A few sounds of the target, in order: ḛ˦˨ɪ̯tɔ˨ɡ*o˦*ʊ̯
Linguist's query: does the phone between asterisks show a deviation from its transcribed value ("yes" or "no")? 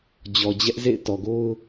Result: no